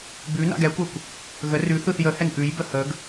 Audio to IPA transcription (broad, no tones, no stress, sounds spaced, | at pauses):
b ʉ n a̰ ɡ ɛ kʷ ɐ kʷ | ɣ ə r ʉ θ ɯ θ j ə h ɛ n ʔ ʉ j b ə h ə ɡ